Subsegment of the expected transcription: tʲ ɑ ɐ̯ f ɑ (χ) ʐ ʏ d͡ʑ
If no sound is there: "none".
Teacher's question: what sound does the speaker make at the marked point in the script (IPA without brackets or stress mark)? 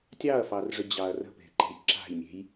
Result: r